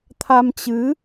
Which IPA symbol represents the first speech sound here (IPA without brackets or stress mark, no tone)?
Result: t̪ʰ